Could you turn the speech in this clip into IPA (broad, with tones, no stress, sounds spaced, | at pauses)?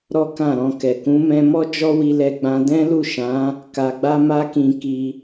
ɾ ɔ˦ k ã˦˨ ɾ ɔ̃˧ k ɛ˨ k ũ˨˦ m ɛ̃˧ m ɔ˦ d͡ʒ ɔ˦ w i˧ l ɛ˧ ɡ͡b ã˧ d ɛ̃˦ l u˦˨ ʃ ã˨˦ | k a˧ ɡ͡b a˦ m a˦ k ĩ˧ k i˧